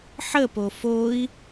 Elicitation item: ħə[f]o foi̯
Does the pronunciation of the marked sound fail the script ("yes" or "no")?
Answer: yes